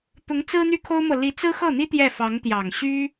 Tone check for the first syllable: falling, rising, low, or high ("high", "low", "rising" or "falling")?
rising